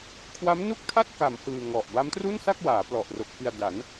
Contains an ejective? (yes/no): no